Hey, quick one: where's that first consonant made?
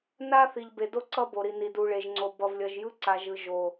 tongue tip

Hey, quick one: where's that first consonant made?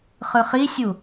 uvula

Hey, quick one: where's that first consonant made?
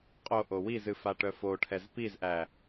uvula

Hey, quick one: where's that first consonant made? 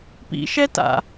lips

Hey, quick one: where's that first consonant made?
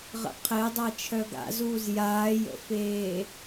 uvula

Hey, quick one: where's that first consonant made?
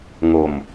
velum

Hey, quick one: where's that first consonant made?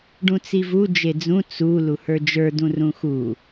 retroflex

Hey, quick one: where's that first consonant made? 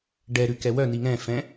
retroflex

